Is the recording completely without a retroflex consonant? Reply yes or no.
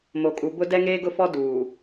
yes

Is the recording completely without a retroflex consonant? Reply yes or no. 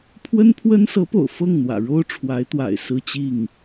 no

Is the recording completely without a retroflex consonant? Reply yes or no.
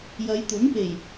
yes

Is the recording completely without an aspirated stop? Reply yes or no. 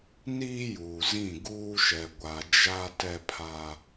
no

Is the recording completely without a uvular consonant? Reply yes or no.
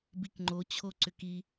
yes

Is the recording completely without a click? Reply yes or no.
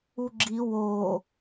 no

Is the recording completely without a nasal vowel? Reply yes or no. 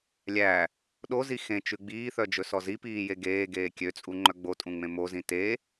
no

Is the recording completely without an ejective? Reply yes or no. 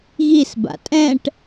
no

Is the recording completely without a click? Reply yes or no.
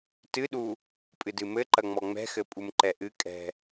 no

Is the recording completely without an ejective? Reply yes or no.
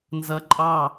no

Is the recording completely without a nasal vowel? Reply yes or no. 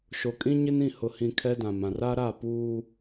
no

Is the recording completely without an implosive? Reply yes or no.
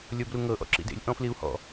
yes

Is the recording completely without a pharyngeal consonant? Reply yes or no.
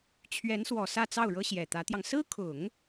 yes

